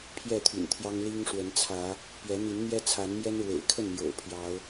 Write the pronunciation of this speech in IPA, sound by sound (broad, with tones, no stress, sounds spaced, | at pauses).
pʰ j ɛ˥˨ t̪ʰ y̰˨˩ n t̪ʰ j ɑ˦ ŋ l i˦ ŋ ʂ w ə˨˦ n t͡sʰ ä˨˦ | p ɥ ɛ˨˦ n̪ i˨˦ n n̪ j ɛ˦ t͡sʰ a˨˦ n m j ɛ˦ n ɻ w ḛ˨˩ ɪ̯ kʰ ə˥˨ n m j o̰˨˩ ʊ̯ pʰ j ɑ˨˦ ʊ̯